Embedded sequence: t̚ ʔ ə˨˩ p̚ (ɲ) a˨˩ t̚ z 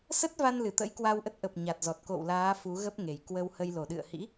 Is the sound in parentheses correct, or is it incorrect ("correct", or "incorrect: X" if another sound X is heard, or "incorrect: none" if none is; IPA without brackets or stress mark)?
correct